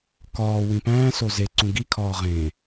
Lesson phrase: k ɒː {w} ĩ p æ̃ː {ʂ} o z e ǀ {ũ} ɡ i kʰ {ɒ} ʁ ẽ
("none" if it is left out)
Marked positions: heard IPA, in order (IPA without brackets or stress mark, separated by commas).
w, s, ũ, ɒː